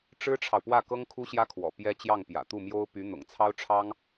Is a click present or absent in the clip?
absent